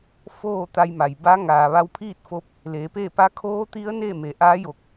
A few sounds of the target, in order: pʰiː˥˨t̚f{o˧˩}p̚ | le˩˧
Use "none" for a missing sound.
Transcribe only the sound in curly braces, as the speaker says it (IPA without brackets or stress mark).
o˧˥